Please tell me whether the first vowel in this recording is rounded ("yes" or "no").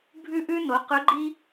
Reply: yes